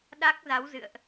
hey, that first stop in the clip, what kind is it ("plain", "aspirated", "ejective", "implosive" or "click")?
implosive